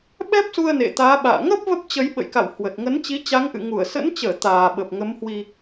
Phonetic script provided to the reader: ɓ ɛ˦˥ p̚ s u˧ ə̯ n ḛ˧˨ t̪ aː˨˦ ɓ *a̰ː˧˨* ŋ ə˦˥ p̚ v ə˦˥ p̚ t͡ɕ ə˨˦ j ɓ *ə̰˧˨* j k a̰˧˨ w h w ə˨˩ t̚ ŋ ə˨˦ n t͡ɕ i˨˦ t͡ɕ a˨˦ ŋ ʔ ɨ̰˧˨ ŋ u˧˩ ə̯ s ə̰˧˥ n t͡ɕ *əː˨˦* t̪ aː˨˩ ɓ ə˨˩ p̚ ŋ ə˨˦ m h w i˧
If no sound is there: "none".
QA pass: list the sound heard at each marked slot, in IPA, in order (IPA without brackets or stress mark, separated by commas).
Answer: a̰ː˧˨, ə̰˧˨, əː˧˩